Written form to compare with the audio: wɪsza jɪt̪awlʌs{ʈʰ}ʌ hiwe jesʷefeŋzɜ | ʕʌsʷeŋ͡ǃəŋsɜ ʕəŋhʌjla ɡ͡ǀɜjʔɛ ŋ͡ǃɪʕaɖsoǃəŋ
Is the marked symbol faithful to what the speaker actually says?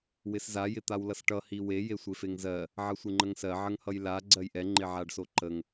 no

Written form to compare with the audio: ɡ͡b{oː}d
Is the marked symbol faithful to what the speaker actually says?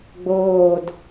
yes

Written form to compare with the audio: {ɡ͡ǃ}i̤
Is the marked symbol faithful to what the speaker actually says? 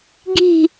no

